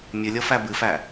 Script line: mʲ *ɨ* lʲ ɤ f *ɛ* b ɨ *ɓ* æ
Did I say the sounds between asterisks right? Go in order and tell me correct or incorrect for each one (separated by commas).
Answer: correct, incorrect, incorrect